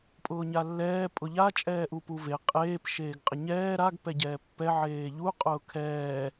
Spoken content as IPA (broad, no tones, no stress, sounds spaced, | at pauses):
pʼ ʊː ɲ a lː ɛː pʼ ʊ ʎ a t͡ʃʼ ɛː ʔ u p u v e qʼ eː p ʃ eː ɡ qʼ ɪ ɲ ɛː ɾ a ɡ p ɛ ɟ ɛː pː ɛ ʕ eː ʎ u qʼ ʊː kʰ ɛː